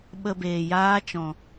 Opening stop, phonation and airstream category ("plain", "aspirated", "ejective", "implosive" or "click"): implosive